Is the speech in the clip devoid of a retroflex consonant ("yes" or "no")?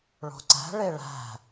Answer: no